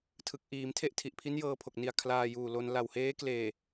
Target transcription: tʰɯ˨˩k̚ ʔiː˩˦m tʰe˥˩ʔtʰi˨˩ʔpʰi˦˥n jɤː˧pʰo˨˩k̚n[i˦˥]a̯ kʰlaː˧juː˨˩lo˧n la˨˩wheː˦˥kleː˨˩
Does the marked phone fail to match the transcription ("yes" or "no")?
yes